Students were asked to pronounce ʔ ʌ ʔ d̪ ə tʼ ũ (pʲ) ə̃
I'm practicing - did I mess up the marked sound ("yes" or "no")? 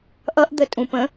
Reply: yes